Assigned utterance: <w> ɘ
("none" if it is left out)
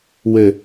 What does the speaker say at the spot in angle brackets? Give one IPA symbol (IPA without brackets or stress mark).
w